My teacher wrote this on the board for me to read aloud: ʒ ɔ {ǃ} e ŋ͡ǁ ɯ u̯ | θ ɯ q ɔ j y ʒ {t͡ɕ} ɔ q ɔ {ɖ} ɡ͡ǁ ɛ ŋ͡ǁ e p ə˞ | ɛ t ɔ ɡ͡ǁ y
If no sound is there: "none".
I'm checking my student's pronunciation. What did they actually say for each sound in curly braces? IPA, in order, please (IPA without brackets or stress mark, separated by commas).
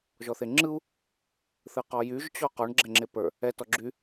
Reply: θ, t͡ɕ, ɳ